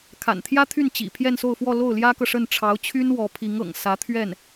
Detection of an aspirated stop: present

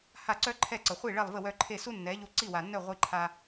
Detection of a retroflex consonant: present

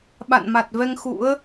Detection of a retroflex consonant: absent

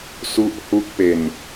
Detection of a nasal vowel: absent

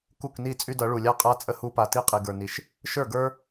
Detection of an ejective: present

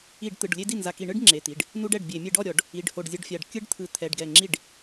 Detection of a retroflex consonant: present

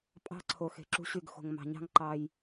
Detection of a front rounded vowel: present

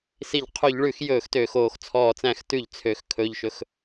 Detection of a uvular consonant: present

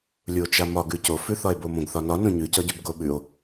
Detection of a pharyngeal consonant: absent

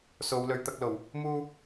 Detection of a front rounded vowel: absent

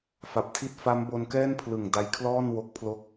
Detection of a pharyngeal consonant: absent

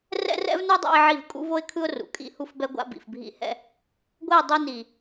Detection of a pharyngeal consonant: present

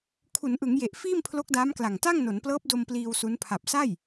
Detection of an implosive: absent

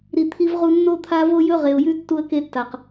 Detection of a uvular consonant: present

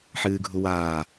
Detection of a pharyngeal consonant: present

